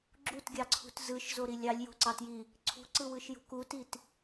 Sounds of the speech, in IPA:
ɡ͡ǁ u t ɡʲ ɑ ǀʰ ṳ t z ɯ ʃ z o ɾ i lʲ ɑ lʲ j o̤ ǀ ɑ t j i | ǀʰ ṳ ǀ ɯ w ɯ ʃ j ṳ k u t i t

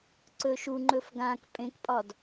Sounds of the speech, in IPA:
ǀ ɵ ʃ u ŋ͡ǃ ɵ f ɡ ã k pʼ ẽ k pʼ ɒ d

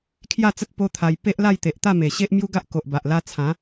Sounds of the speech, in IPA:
kʰ j a˥˧ t͡s ə˦ t̚ p o˦ t̪ʰ a˧ j p e˦ ʔ l a˥˧ j t̪ e˨ ʔ t̪ a˥˧ m e˨˩ ɕ e˦ ʔ m j u˦ ɡ a˦ ʔ k o˨ ʔ b a˨ ʔ l a˧ t͡sʰ ã˨˦

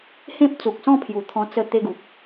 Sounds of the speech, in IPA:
h ẽ˦ p̚ t͡s u˨ k̚ s ɔ̃˥˧ pʰ j u˨˩ t̪ʰ ɔ̃˧ t͡s ə˥˧ t̪ e˧ ɡ u˨ k̚

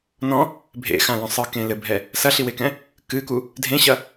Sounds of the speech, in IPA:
n ɔ̃ | bʱ ḛ x ã l ɔ̃ sˤ ɨ k ẽ l ɘ bʱ ɛ | s ɐ ɬ i w e k ɛ̃ | k ɨ k u | dʱ ẽ ɕ ɐ

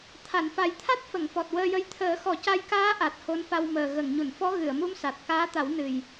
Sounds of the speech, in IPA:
t̪ʰ a˨˩˨ n f a˨˩ j t̪ʰ a˦˥ t̚ f ə˨˩˨ ŋ f ɔ˨˩ t̚ w əː˧ j ə˧ j t̪ʰ əː˨˩˦ x ɔ˨˩˦ c a˧ j k aː˧˥ ʔ a˨˩ t̚ h o˧˥ n f a˧ w m əː˨˩ ɣ ə˨˩˨ ŋ ɲ u˨˩˨ n f ɔ˧˥ ɣ ɨ˨˩˨ ə̯ m u˧˥ m s a˨˩ t̚ k aː˧˥ t̪ a˨˩˦ w n ɨ˨˩ j

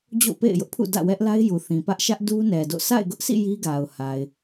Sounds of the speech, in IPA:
d͡ʑ o̰˦˨ p ḛ˦˨ ɪ̯ j ʊ˦ ʔ pʰ ṵ˦˨ d ä̰˦˨ w ɛ˦ ʔ l a˦ ɪ̯ j u˨ θ ĩ˨ p ä˦ ʔ ʃ ä˦ ʔ d u˦ n ɛ˨ d o̰˦˨ sʰ a̰˦˨ ɪ̯ ɡ ʊ˦ ʔ sʰ ḭ˦˨ j i˦ ɡ a˨ ʊ̯ h a˨ ɪ̯

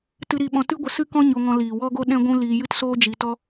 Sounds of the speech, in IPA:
t ɨ˧ ɾ i˧ ɓ ɔ̃˧ t ɨ˦ ɡʷ ə˧ s ɨ˦ k ɔ̃˦ ɲ o˧ ŋ ɔ̃˧ l iː˨ w ɔ˦ ɡ o˦ ɗ ɛ̃˦ ɡʷ ũ˦ l iː˧ j ɨ˦ t s oː˦ d͡ʒ i˧ t ɔ˦

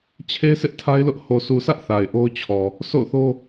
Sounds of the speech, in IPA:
t͡ɕʰ e˦ s ɪ˦ ʔ tʰ a˦ ɪ̯ l ʊ˦ ʔ h o˨ sʰ u˨ sʰ ä˦ ʔ θ a˨ ɪ̯ ʔ o˦ ʊ̯ t͡ɕʰ ɔ˨ | s o̰˦˨ ʊ̯ θ o˦

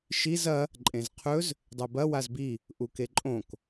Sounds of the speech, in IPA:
ʃ i z ɐ | ǃʼ ẽ z qʰ ɵ z | dˤ e b ɐ w a z b i | ʔ u k e ǃʼ õ k

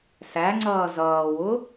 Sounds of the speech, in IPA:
s æ ŋ͡ǀ ʌː z ʌː w ʊ

